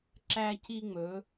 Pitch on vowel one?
high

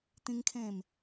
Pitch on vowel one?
high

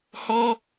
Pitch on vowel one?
high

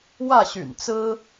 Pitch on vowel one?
falling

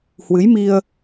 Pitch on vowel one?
rising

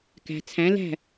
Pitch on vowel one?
low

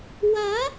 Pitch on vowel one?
rising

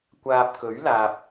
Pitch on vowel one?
low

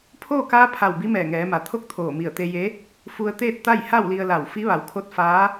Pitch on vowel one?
falling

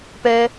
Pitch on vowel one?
high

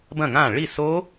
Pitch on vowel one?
falling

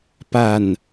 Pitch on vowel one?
low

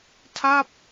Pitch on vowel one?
falling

